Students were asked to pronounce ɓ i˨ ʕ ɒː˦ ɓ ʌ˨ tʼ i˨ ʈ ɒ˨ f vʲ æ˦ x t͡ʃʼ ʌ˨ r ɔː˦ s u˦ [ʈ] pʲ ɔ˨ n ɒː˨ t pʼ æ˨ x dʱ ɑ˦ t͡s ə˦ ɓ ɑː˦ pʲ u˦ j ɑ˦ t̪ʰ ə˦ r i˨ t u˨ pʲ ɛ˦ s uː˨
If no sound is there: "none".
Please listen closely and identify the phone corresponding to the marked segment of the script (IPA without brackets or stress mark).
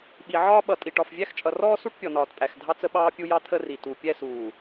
ʈ